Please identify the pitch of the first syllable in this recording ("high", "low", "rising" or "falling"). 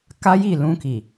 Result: high